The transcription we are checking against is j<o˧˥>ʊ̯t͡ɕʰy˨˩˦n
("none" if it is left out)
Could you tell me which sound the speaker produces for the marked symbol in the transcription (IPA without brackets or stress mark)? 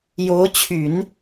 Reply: o˧˥